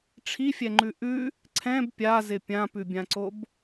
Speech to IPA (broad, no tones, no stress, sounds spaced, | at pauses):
ʈ͡ʂʰ i fʲ ɛ ŋ͡ǃ ʉ ʔ ʉ | ǀʰ ɛ̃ b pʲ a z ɪ pʲ ã p ʉ bʲ ã ǀ o b